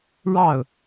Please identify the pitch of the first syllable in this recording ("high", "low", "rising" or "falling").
falling